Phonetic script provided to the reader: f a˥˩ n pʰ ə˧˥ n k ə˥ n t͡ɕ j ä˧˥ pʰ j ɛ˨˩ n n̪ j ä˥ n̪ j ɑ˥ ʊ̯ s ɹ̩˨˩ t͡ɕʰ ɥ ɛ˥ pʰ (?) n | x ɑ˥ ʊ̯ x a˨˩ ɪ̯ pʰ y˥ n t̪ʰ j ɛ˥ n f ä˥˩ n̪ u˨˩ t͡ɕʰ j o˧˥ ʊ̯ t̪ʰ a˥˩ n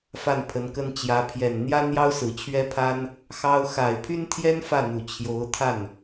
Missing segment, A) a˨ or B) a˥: B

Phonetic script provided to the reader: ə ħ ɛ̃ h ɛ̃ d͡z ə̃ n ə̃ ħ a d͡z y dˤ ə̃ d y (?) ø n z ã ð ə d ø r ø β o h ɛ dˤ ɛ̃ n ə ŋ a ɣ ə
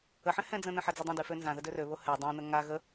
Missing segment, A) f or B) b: A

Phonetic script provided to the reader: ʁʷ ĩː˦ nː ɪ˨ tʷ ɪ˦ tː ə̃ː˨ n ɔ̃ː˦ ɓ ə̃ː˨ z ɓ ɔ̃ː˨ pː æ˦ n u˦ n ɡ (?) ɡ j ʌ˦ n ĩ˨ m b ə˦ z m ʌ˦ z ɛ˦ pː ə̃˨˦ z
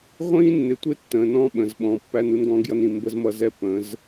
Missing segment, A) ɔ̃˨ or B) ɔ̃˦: B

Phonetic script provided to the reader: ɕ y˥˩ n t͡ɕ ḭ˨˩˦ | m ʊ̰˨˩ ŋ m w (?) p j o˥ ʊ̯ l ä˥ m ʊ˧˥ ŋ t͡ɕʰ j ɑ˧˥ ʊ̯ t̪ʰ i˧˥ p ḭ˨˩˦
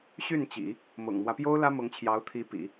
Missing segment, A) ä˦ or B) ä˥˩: A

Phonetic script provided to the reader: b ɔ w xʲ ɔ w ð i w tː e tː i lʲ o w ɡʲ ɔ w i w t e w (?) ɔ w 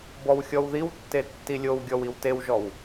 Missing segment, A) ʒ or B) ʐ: A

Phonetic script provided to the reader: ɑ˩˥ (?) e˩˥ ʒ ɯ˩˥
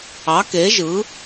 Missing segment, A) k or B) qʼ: A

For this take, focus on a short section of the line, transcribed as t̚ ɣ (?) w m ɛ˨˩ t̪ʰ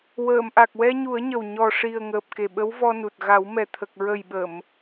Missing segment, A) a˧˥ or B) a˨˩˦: B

